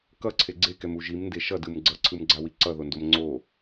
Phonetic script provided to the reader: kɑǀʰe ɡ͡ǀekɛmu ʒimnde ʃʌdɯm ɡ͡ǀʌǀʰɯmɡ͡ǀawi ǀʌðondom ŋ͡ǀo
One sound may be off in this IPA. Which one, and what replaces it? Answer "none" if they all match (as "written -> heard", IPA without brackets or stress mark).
ɑ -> ʌ